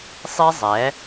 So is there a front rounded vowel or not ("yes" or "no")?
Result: no